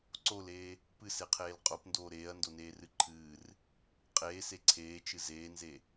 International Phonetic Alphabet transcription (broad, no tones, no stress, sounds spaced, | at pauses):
ǀ o l eː | p ɨ s e qʰ eː l qʼ o p n d oː ɾ eː ɐ̯ n d o n eː r ɨ ǃʰ ɨː r | qʼ eː s e ǀʰ eː t͡ʃ ɨ z eː n z e